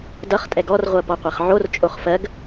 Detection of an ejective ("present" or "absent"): present